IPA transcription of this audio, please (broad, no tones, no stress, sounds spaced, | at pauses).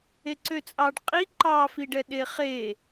e ǀ ø t͡sʼ ɑ ɖ qʼ i ǃ ɑ f i ɖ ɛ ɗ e χ e